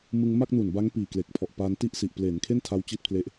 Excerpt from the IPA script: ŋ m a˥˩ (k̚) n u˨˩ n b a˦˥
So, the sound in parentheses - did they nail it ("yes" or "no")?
yes